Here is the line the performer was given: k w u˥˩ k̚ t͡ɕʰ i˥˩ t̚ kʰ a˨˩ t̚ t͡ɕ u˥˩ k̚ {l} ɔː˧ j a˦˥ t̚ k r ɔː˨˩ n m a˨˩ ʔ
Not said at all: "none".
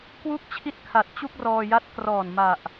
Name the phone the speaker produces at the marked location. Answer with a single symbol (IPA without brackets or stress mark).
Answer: r